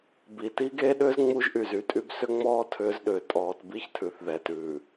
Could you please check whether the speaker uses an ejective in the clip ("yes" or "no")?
yes